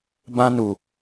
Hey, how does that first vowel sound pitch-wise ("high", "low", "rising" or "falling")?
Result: high